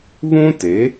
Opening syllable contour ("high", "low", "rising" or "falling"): high